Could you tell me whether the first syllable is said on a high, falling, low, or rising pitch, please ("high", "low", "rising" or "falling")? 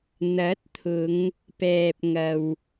rising